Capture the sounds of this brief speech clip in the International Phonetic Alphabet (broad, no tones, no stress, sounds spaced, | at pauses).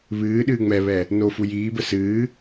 β ɨː ɗ ɨː ŋ͡m ɛ β ɛ | n o f u j iː b ə s ɨː